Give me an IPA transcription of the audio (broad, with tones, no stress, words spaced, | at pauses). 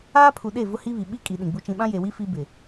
aː˦pʰu˨ɗe˦˨ vʊ˦hi˦βi˨ ɓi˦ kʼi˨ ɗĩ˨ɡ͡bu˦t͡ʃĩ˦ ɓã˦je˨wi˦ fi˦bɪ˨